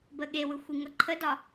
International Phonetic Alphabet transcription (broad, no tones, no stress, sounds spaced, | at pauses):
b ə ɠ e w ɯ xʷ i ŋ ʌ ǃʰ ə d ɒ